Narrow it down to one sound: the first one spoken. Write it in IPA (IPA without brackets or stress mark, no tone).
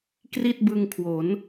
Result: k